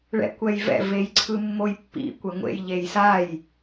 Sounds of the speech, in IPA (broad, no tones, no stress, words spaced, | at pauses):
ɭɛ̰kʷɛjvɛ̰ vejǀʰɯmːojpːḭ kʷɛŋʷḛj ʎejsaj